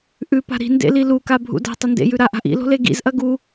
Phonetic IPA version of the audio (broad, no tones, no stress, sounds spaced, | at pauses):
ʔ ʉ p a̤ ɾ i̤ n d ḛ l i l u k a bʱ ṵ d a̤ tˤ ɐ n d ḛ j ʉ ɾ a ʔ a̤ ʔ ḭ l o̤ l e ɡ ḭ z ʔ ɐ ɡ u